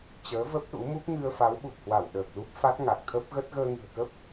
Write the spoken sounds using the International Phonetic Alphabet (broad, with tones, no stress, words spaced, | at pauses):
t͡ɕəː˨˦və˦˥p̚ ɗṵ˧˥ mu˦˥p̚ŋɨ˧ə̯ fa˨˦wɓu˨˩k̚hwa˧˩w ɗəː˨˩k̚lu˦˥p̚fa˦˥t̚ ŋa˨˩k̚t̪ʰə˦˥p̚ɣə˦˥t̚ ɣəː˧ŋɨ̤˨˩ə̯kə˦˥p̚